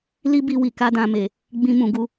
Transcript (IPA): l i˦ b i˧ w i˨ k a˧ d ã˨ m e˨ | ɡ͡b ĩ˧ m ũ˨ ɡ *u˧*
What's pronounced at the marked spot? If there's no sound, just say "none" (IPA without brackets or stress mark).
u˧